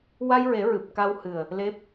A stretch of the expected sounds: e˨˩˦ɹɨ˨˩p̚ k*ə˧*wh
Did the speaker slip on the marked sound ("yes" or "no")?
yes